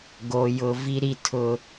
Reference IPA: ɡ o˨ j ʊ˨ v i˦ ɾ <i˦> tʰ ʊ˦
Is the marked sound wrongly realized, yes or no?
no